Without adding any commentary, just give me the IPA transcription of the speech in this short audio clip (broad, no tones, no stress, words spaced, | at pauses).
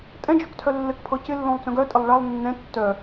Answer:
tʼɛ̃d͡ʒœktʰœ lːɘkpʰɤ cɪlːõlˠt͡sœ̃ɡ œtʼɪlˠ ɭalˠ nːɛ̃ tːœ